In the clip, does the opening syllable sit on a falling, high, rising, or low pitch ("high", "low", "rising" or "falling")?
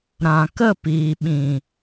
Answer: low